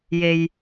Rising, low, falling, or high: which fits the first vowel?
low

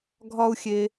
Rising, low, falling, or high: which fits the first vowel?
high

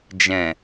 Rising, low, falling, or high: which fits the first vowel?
low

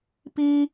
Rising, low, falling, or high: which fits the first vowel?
high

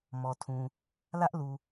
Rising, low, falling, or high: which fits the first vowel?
low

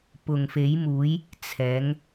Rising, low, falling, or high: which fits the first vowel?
low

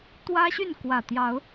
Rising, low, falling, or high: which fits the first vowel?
high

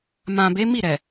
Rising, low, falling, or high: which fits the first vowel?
low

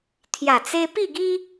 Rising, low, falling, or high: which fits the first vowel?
low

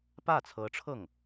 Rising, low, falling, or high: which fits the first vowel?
falling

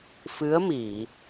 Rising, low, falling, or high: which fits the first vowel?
rising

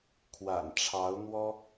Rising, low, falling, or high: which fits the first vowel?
low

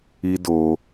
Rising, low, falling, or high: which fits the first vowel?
high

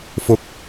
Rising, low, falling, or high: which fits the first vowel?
rising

